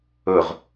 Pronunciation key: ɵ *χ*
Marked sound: incorrect: ʁ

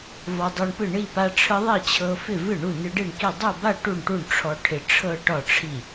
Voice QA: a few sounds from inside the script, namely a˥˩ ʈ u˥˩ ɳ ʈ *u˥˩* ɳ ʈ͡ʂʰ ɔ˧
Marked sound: correct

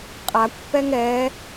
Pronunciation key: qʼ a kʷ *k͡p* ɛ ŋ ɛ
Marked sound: incorrect: p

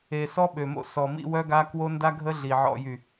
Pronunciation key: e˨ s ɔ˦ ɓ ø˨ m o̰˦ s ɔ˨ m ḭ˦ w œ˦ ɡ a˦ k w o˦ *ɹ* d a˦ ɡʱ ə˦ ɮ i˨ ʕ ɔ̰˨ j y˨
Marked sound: incorrect: n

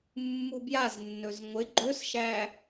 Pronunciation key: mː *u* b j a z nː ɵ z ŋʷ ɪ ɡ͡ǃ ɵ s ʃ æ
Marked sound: correct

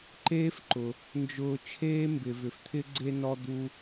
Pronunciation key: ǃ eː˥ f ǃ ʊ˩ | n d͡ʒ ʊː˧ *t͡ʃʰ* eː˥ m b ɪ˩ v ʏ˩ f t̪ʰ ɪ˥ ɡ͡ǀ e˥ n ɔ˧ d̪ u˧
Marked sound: correct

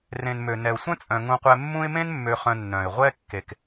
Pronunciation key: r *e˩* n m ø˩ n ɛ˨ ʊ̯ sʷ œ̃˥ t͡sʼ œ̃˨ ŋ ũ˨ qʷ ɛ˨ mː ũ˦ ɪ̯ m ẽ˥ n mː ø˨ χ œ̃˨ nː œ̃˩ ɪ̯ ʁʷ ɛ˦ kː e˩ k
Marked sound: incorrect: ẽ˩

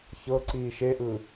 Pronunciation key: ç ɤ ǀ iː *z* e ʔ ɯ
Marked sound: incorrect: ʃ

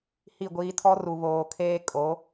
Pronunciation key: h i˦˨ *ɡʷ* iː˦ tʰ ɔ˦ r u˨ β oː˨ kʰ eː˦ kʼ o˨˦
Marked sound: correct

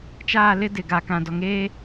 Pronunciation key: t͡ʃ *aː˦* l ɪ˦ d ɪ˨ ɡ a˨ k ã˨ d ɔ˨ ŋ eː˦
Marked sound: incorrect: aː˦˨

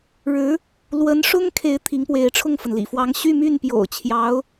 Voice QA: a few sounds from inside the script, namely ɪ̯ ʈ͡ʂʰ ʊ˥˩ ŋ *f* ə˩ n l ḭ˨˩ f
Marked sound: correct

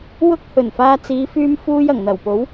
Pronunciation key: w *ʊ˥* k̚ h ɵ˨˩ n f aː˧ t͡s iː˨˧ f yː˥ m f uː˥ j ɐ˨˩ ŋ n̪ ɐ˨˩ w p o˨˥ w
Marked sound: correct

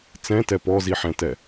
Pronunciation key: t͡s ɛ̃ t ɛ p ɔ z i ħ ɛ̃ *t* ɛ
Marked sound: correct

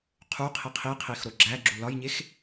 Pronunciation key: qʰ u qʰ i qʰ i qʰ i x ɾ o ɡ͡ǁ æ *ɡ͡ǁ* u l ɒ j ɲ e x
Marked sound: correct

